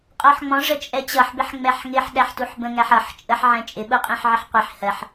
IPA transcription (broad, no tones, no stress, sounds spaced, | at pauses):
qʼ ɔ ħ ŋ͡m ɔ̃ ʐ ə t͡ʃʼ ɛ t͡ɕ ʌ ħ b ɪ ħ ŋ͡m ɛ ħ ŋ ɪ ħ ɗ æ ħ t u ħ b ə̃ ŋ æ ħ ʌ ħ t͡ʃʼ ə ħ ʕ ɛ̃ t͡ʃʼ ɪ ɓ u qʼ ĩ ħ ʕ ɪ ħ qʷ i ħ h ɜ ħ